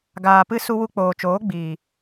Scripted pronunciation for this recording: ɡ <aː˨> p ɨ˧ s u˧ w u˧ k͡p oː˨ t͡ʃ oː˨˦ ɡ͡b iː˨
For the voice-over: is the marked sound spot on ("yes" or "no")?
yes